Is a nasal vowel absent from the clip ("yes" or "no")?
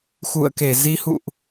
yes